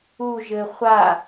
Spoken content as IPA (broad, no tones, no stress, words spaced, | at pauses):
uʒɘ χʷa